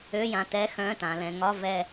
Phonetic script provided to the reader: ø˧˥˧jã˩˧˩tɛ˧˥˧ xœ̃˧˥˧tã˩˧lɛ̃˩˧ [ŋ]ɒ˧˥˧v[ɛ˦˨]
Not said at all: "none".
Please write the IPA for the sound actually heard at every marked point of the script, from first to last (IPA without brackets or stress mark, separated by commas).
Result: ŋ, ɛ˦˨